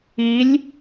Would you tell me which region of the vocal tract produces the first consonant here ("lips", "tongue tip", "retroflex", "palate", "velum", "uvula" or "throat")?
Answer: tongue tip